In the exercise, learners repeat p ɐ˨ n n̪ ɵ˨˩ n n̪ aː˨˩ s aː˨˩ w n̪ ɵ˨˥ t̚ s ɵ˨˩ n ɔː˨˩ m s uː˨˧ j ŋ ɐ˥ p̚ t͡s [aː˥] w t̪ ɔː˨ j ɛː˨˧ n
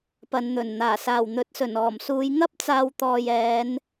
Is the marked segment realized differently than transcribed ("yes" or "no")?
yes